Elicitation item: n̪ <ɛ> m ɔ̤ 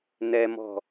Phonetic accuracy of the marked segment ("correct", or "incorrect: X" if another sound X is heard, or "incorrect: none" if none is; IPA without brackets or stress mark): correct